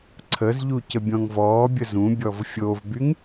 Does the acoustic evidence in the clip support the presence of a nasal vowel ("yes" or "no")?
yes